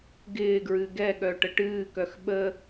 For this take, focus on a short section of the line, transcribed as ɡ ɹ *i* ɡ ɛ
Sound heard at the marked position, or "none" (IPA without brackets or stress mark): ɨ